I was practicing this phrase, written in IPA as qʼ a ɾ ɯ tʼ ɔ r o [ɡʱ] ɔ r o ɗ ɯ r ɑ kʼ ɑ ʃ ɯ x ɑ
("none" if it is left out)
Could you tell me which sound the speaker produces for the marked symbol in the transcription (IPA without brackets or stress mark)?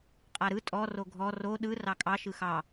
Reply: ɡʱ